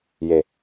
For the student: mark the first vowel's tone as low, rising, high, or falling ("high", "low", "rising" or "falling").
low